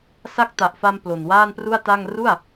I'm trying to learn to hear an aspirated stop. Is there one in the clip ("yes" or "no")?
no